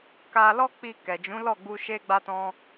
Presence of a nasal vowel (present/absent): present